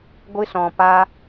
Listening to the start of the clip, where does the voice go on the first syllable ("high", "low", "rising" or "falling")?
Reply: high